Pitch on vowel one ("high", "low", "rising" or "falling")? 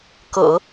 low